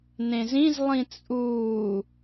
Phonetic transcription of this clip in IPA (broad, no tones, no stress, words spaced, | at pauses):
nẽzĩz lˠĩt͡sʼuː